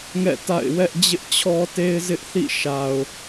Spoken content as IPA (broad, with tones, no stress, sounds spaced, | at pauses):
ŋ ɛ̰˦˨ t a̰˦˨ ɪ̯ w ɛ˦ ʔ d͡ʑ ɪ˦ ʔ t͡ɕʰ ɔ˦ t e˦ ɪ̯ z ɪ˦ ʔ θ ḭ˦˨ ʃ a˨ ʊ̯